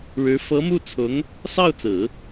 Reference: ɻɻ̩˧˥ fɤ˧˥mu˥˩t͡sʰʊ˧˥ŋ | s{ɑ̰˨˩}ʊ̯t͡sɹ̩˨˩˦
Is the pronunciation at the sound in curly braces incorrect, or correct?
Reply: incorrect